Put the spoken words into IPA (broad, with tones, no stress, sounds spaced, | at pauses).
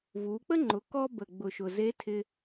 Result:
v u˩˧ k͡p ə˥ ŋ͡ǃ ʊ˩˧ k ɔ˧ b ə˩ ɡ͡b ʊ˩ ʃ ʊ˩ z e˧˥ tʰ ɪ˧